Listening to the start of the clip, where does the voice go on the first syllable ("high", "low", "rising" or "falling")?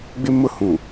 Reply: high